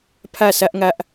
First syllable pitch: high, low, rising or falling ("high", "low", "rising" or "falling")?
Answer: falling